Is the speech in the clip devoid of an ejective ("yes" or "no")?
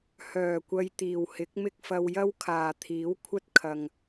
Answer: yes